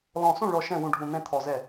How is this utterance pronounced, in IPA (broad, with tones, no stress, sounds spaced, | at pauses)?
l ɔ̃˧˩ s ũ˥˩ ɭ ɔ˧˩ ʃ ɛ̃˥˩ w ũ˧˩ ɖʱ ũ˧˩ n̪ ɛ̃˥˩ t̪ʰ ɔ˧˩ z ɛ˥˩